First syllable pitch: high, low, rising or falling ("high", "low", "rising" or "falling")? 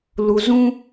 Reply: low